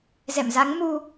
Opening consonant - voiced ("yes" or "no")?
yes